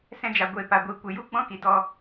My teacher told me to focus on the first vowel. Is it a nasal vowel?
yes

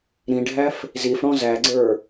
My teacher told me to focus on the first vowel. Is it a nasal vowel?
yes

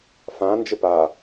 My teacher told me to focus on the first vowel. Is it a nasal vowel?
yes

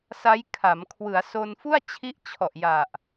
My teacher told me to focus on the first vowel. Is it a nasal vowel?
no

